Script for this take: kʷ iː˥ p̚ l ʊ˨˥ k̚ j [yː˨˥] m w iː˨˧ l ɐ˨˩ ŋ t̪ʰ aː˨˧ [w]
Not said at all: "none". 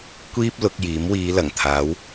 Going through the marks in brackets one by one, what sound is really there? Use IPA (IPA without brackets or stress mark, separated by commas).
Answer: iː˨˥, w